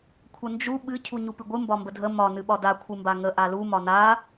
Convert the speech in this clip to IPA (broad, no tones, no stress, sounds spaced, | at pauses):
kʷʰ ə n d͡ʒ u ɓ ɨ cʰ u ɲ u p ɨ ɡʷ ɨ m b ɒ m b ə dʱ ə m ɒ n ɨ ɓ ɒ d a kʷʰ ɨ m b a ŋ ə ʔ a l u m ɒ n a